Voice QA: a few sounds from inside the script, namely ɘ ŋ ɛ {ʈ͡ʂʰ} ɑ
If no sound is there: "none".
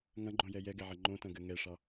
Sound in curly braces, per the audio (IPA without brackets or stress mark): ʂ